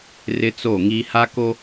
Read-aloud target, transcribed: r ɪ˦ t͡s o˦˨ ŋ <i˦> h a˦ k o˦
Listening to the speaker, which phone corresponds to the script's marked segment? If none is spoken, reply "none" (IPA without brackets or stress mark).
i˦